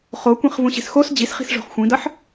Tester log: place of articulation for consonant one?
uvular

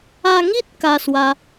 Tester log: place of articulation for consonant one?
velar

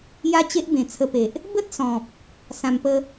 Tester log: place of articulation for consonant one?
palatal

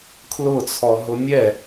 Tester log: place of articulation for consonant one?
velar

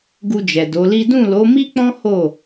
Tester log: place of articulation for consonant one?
velar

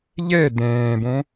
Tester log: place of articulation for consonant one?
palatal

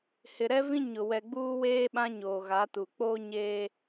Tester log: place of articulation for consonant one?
glottal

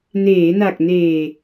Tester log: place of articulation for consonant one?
alveolar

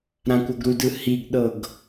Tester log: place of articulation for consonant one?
alveolar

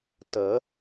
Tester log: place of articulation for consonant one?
alveolar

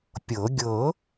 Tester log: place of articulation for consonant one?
labial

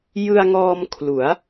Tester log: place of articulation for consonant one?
palatal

